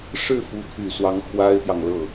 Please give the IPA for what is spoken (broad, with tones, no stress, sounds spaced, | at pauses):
ʂ ɻ̩˥˩ f u˧˥ t̪ʰ y˨˩ s w ɑ˧˥ ŋ x w a˥ ɪ̯ t̪ j ɑ˨ ŋ l ɤ˥˩